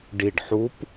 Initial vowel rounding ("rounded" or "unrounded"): unrounded